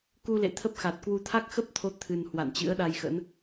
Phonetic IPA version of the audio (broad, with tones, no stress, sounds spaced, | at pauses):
k u˧ l ḛ˧˨ t̪ʰ ə˦˥ p̚ x a˨˩ t̚ k w u˧ t̪ʰ a˦˥ k̚ x ə˦˥ p̚ t̪ʰ o˨˦ t̪ʰ ɨ˨˩ n h w a̰˧˨ n t͡ɕ ɨ̰˧˥ ə̯ ɗ a˧ j x ə̰˧˥ n